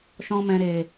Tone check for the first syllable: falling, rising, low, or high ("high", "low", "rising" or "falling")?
high